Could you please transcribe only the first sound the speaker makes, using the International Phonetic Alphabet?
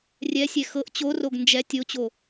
rʲ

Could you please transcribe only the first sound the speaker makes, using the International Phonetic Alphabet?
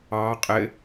ɑ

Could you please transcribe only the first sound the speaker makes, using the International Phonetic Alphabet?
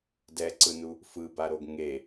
d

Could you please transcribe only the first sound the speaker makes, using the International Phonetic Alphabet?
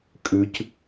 kʼ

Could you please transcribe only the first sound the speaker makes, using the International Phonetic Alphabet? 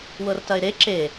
w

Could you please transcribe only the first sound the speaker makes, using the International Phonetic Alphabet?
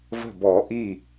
v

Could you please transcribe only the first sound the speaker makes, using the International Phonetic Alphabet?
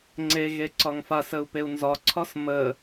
ŋ͡ǀ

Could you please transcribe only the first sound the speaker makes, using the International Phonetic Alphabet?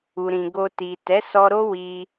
u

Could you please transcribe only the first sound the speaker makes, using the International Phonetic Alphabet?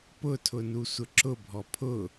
p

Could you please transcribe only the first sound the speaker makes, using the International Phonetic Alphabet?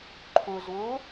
ǃʰ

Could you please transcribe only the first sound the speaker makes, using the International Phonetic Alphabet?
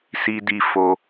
s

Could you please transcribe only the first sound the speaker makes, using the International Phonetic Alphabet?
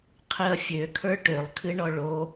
qʰ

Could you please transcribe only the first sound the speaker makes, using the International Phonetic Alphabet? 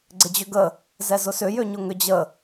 ɡ͡ǀ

